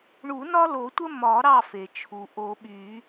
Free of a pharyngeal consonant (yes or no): yes